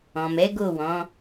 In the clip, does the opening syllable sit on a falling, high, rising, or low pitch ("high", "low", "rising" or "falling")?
low